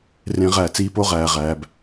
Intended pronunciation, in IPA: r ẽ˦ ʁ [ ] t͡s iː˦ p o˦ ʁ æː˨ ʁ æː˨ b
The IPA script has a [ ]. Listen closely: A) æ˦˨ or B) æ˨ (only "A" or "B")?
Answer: A